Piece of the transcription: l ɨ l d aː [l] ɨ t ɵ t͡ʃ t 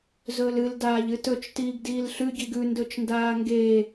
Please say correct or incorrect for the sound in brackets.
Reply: incorrect